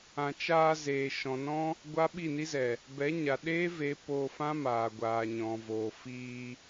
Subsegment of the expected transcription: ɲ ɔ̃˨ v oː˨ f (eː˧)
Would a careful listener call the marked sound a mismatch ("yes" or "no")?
yes